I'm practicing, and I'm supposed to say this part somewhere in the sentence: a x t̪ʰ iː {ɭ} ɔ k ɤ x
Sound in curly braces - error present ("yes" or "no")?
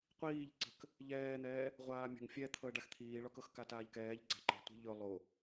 no